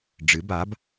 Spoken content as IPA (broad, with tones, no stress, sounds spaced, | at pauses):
ɖ͡ʐ ɨ˩˥ b a˩˥ b